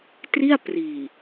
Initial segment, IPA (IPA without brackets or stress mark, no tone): t